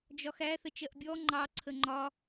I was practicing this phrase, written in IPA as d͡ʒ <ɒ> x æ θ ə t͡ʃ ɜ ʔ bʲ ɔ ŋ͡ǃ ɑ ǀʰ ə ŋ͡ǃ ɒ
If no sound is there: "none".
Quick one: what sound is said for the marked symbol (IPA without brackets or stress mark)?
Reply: ɒ